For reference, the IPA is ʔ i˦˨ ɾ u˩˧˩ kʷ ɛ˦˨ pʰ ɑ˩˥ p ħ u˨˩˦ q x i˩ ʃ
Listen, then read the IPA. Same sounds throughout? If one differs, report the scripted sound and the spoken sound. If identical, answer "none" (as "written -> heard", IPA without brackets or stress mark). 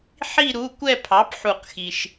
ʔ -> ħ